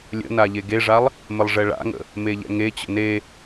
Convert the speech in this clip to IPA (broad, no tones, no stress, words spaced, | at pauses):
lʲə̰na ʎeɡeʐalˠ | mɘlˠʐɛɭa̰ŋə̰ | meʎɛ̰ŋet͡ɕə̰ ne